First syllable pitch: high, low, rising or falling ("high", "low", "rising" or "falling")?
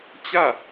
falling